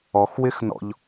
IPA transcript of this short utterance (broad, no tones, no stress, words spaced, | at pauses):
ɔxwɪxnɔ̰ʎ